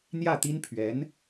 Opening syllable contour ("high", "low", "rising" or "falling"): falling